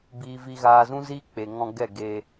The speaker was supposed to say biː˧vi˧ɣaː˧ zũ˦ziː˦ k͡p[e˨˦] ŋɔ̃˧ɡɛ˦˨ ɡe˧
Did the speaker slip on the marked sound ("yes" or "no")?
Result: yes